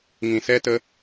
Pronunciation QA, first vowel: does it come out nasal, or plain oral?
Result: nasal